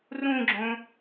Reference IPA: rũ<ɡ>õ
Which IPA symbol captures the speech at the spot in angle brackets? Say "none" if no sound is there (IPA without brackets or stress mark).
ɡ͡ǁ